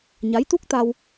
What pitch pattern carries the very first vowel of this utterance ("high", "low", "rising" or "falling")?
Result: rising